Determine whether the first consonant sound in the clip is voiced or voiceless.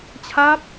voiceless